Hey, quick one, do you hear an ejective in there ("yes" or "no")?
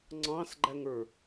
no